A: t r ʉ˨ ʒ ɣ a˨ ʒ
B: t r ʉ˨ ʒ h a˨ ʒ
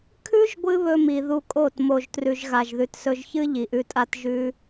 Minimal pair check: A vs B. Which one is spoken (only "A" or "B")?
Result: A